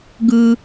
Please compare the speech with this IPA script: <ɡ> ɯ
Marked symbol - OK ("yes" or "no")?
yes